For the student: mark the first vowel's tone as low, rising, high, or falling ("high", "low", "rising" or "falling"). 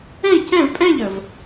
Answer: falling